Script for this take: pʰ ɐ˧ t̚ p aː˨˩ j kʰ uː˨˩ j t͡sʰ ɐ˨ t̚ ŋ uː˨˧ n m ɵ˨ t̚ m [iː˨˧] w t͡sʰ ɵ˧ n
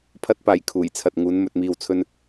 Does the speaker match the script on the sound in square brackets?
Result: no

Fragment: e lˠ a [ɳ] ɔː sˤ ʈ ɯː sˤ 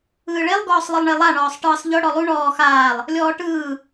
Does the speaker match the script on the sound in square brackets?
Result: yes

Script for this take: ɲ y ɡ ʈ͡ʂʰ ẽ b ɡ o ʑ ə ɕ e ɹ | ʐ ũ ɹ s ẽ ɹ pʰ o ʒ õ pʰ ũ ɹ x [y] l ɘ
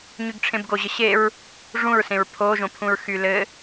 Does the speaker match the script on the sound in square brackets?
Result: yes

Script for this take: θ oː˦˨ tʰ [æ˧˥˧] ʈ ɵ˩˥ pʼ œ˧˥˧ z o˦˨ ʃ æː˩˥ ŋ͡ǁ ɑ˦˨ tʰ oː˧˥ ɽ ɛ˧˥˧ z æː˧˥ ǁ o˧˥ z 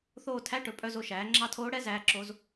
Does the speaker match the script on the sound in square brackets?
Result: yes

